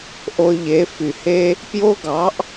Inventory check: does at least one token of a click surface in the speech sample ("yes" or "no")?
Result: no